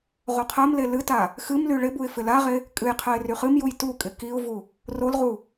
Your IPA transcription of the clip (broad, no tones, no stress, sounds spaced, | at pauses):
ʁ o qʰ ɜ m l e l ɨ t a | x ɨ m l y ɭ ɪ b u ɪ̯ f ɪ l a ʁ e | kʼ ɨ j qʰ ɜ ɪ̯ r y χ ɨ m j u j t u kʼ ɪ k i ʊ̯ v u | r o l ʁ u